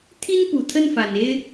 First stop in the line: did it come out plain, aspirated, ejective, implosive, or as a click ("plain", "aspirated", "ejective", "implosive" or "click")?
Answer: aspirated